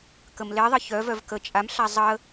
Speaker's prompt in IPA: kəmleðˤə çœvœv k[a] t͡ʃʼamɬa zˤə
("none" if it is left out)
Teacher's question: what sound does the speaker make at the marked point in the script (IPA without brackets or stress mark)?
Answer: ə